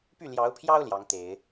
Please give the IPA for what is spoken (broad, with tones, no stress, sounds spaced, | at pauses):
p y˥˩ l j ɑ˧˥ ʊ̯ pʰ j ɑ˥ ʊ̯ l j ɑ˧˥ ŋ t̪ e˨˩˦ ɪ̯